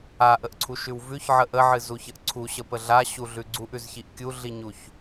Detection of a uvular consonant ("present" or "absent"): absent